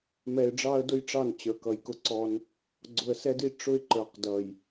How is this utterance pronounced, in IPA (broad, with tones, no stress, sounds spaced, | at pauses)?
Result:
m ɛ˨ ɪ̯ ɖ͡ʐ ɑ˦ ə̯ d ʊ˦ j ʈ͡ʂ ɑ˦˨ n t͡ɕ ə˞˨ k ʌ˨ j k ʊ˦ ǀ ɔ˦ n | ɡ͡ǀ ʊ˨ ə̯ s ɛ˦ d i˦ ʈ͡ʂ ʊ˦ ɪ̯ ǃ ə˞˨ q d ʌ˨ j